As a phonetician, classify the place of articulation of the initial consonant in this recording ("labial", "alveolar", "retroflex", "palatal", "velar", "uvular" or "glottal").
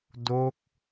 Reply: alveolar